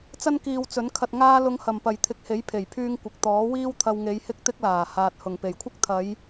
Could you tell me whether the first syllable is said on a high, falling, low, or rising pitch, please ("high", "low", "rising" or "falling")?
high